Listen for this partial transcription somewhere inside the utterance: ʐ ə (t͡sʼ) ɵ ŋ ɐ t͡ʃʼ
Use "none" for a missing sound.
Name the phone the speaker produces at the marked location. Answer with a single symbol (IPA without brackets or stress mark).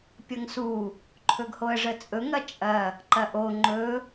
t͡sʼ